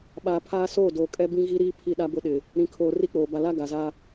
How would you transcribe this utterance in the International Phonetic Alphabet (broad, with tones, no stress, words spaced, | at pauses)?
ɓaː˨pʰaː˦soː˦˨ doː˨kʼɛ˦ bĩ˦ɣi˦ɾiː˦ pʰi˦˨ɗa˦bʊ˦ ɗɪ˨ | ɾĩ˨kʰoː˨ ri˦k͡poː˨ ba˨la˦ ɡa˨za˦